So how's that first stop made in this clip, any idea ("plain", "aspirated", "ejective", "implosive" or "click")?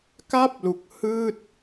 plain